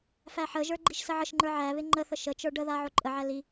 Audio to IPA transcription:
fæħəʒə˞ ɡ͡ǃiʃsəʕəʃŋ͡ǃə˞ ʕæβɪ ŋ͡ǃəθə ʃət͡ʃə˞ ɖəða ʕoǃʼəʕæ li

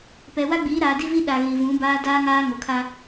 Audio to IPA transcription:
pɛ˨wa˦ɡ͡biː˨˦ ɾaː˨ di˦vi˦ ɗa˨ɣi˨vũ˨˦ baː˦daː˦ŋaː˦ ŋo˨kʰa˦

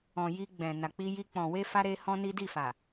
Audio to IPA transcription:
ɔ̃˨ ji˧ ɡ͡bɛ̃˨ na˨k͡pi˧ji˧ k͡pɔ̃˨we˧fa˧ ɾe˦hɔ̃˦ni˦ di˦˨fa˨

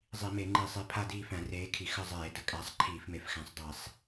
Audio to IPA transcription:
zˤi˧˩˧me˧˩˧ŋ͡ǃi˧˩˧sˤi˨˦ pʰa˦˨diː˦˨fæ̃˧˩˧ reː˨˦kʰi˨˦ xə˦˨zˤeː˧˩˧ də˨˦kʼæ˨˦sˤ ǃʰiː˧˩˧fme˨˦fxæ̃˨˦sˤ dˤe˧˩˧sˤ

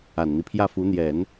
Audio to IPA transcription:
a˨˩nn̪i˦ pʰjä˥˩fu˧˥n̪jɛ˨˩˦n

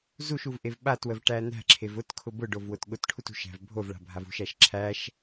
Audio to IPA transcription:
zuʃuvʔev ɓatwəvʈæ næ̤ǁʰev ʊtkʰʊ bʊɖovwʊt ɠʊtʈʰut ṳʃæ̤v bʱovɭa̤bʱav ṳʃæʃ ǁʰæʃ

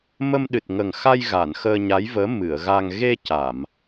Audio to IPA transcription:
mə˧mɗɨ˨˩t̚ŋə˨˩ŋxa˧j ɣa˨˩˨nxəː˧ɲa˧˥jvəː˧˥ mɨ˨˩˨ə̯ ɣa˧ŋ ɣe˧ ca˨˩˨m

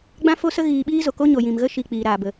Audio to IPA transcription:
ɡ͡bã˦fo˦sə˦ ɣiː˧ ɓiː˦zo˨ko˦ ɲo˨jĩ˨mɣə˦ ʃi˧k͡piː˨ ɾaː˨bə˨

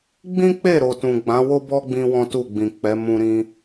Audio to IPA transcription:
ɡ͡bĩ˦k͡pe˦˨ɾo˨tũ˨ ɡ͡bã˨˦wo˦bɔ˦ ɡ͡bĩ˦wɔ̃˦tu˦˨ɡ͡bĩ˨ k͡pɛ˨˦ mũ˦ɾĩ˦

